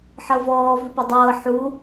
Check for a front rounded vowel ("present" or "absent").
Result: absent